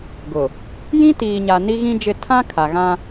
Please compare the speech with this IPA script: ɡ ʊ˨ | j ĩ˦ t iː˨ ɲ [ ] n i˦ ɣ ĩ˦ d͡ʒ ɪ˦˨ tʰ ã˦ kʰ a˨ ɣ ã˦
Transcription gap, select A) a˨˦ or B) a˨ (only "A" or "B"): B